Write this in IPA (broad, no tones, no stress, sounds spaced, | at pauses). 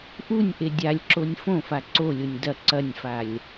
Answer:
ʔ u nʲ ʔ e dʲ a lʲ ǁ o nʲ f õ f a ǀ o lʲ o nʲ d ɐ ǀ ɐ nʲ f a lʲ